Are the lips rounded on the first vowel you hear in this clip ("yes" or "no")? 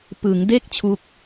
no